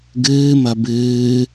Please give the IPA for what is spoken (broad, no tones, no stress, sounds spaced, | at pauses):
ɡ ɨː m ɐ b ɨː